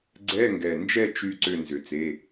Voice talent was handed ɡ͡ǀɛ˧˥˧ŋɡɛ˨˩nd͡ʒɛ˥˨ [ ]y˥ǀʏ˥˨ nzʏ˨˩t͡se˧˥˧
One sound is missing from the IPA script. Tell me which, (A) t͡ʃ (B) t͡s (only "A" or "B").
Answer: A